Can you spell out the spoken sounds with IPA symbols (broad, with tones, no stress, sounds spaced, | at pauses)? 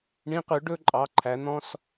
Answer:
ɳ ĩ˧˥ q ʉ˩˥ ɖ ɵ˧˥˧ ǃʼ ɑ˩˧˩ ǃʰ æ˨˩˦ n̪ ɔ̃˧˥˧ s